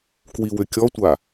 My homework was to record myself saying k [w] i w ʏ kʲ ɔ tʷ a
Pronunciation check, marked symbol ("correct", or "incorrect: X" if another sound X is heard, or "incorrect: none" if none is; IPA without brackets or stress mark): correct